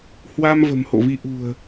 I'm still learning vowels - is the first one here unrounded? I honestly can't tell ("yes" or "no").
yes